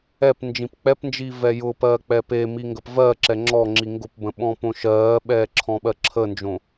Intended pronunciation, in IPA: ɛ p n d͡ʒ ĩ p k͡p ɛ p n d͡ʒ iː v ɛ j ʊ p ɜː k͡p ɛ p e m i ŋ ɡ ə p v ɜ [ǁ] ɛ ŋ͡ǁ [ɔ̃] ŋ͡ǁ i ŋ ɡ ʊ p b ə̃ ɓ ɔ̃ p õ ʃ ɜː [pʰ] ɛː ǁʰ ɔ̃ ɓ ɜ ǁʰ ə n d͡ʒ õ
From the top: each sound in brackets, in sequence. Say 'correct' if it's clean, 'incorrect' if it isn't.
correct, incorrect, incorrect

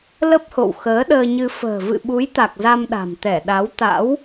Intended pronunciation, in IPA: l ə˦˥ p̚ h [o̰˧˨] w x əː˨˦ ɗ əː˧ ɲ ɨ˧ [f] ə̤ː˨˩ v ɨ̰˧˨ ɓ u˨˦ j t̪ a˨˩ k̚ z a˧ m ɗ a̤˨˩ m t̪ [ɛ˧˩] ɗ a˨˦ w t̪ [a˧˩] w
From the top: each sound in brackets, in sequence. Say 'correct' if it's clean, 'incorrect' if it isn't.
correct, correct, correct, incorrect

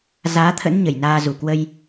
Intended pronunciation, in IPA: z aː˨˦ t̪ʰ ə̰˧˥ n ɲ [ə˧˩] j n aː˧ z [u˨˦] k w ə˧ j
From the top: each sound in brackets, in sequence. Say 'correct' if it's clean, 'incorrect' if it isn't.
correct, incorrect

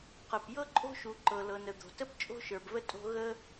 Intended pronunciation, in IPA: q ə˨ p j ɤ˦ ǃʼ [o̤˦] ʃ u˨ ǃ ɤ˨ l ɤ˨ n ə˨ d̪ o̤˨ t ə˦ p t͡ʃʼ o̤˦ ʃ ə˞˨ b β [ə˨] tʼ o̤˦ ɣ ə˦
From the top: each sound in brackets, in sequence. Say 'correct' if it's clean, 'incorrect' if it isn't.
correct, incorrect

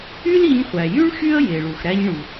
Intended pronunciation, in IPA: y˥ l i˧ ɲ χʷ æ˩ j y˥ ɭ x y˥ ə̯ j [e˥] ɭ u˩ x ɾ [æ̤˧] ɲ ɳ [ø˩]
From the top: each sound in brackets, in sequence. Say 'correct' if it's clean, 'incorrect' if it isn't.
incorrect, incorrect, incorrect

